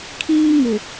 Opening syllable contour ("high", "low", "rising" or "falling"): high